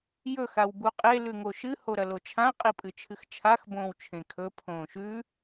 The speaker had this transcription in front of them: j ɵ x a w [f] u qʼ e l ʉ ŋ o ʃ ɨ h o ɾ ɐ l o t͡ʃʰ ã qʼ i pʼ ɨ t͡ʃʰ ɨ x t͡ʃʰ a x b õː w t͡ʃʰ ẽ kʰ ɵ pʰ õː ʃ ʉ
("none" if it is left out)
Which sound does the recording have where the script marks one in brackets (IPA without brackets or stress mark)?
b